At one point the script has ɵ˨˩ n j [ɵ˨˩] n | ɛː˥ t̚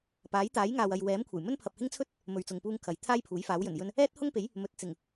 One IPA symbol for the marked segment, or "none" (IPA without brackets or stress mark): ɵ˧